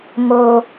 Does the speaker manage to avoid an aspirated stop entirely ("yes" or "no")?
yes